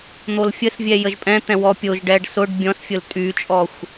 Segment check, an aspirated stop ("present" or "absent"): absent